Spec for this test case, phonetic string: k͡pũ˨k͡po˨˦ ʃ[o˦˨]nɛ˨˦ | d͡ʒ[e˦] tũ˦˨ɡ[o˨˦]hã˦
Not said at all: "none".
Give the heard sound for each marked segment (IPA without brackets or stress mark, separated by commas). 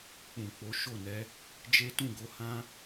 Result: o˦˨, e˦, o˨˦